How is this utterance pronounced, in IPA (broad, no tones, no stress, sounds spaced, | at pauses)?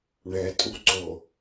ɳ ɛ tʼ u ǀ o